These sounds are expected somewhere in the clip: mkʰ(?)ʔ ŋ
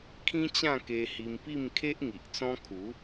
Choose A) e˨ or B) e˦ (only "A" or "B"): B